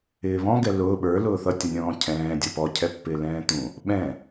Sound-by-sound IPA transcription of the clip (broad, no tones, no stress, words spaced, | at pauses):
ɪːβɔ̃ɡɛ lʊː ɓə˞lʊː θʌtʲʌnʲɔ̃ː cʰɛ̃ː dʲʌpɔcʰɛpːɪː lɛ̃ːt̪ũ | ɓɛ̃